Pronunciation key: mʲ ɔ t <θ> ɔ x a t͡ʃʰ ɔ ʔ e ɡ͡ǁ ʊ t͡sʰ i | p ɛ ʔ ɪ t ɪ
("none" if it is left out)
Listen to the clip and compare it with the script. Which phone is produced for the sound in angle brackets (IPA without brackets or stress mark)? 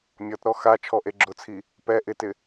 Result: ɾ